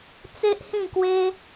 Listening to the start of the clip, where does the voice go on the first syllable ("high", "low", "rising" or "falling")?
high